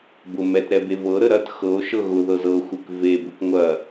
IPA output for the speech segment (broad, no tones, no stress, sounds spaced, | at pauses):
b ʊ m ɛ t ɾ ɛ b e v ɤ ɾ ə ɾ ɐ t x ɤ o̯ ʃ ɤ ɣ ʊ ð ɤ z ɤ xʷ ɪ k v e b ʊ k ŋʷ ɐ